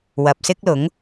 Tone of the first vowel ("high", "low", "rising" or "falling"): low